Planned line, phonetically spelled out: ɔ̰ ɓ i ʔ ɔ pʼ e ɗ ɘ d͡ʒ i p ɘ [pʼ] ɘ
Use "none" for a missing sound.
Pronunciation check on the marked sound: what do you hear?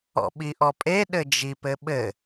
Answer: ɓ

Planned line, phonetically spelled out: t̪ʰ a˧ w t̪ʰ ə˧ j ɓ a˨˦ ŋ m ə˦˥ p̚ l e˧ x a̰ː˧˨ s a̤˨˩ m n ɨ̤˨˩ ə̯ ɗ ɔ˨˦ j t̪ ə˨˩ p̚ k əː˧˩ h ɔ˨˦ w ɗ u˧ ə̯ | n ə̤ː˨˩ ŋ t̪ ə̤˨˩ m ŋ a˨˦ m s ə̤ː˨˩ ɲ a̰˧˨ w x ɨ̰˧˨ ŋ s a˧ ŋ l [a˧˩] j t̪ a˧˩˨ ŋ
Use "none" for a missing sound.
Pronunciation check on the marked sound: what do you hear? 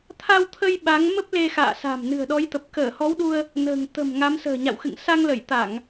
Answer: ə˧˩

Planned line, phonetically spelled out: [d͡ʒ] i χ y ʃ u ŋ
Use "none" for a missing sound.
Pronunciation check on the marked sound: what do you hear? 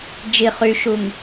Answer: d͡ʒ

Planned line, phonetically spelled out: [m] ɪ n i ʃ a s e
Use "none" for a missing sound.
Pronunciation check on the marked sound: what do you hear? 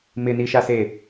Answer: m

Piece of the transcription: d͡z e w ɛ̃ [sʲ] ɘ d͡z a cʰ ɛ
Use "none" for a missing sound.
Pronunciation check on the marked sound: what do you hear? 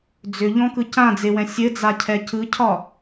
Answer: sʲ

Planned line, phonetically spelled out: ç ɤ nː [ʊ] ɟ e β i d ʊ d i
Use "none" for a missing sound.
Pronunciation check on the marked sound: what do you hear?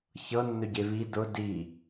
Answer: ɵ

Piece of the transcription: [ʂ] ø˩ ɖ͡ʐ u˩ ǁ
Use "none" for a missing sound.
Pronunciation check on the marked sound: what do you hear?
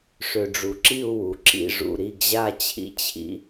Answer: ʂ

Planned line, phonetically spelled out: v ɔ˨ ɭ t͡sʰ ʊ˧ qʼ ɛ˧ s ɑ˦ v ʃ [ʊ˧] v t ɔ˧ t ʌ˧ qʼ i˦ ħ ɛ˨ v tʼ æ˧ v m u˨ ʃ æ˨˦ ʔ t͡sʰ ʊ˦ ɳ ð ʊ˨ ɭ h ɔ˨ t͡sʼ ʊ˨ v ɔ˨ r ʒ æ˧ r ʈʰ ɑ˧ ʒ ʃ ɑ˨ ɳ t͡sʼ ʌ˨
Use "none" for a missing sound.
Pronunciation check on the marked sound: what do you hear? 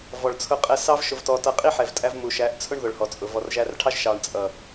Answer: ʊ˧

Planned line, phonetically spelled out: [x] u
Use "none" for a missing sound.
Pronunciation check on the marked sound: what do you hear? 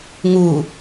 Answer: ŋ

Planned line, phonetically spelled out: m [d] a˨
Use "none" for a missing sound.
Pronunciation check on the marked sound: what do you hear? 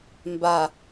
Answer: b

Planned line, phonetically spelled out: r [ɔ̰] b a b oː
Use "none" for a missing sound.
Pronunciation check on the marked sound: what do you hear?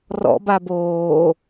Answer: ɔ̰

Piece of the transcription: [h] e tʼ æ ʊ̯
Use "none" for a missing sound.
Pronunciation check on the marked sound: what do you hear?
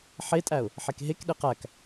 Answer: ħ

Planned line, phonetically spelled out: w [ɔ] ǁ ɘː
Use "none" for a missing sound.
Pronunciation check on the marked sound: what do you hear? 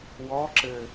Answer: ɔ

